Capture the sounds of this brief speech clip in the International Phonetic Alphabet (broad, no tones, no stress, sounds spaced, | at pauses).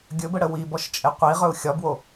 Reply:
ɡʲ ɵ b ə ɽ ə w i b ɔ ʃ t͡ʃʼ e qʷ i ʁ ɵ u̯ xʲ ɒ b w o